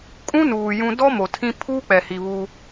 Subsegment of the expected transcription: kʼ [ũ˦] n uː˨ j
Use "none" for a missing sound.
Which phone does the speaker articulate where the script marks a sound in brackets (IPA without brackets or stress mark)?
ũ˦